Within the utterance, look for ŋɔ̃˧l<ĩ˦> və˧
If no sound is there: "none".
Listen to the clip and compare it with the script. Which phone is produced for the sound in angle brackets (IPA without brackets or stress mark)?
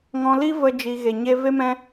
i˦